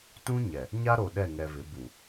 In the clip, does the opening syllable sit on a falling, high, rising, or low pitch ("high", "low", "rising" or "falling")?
high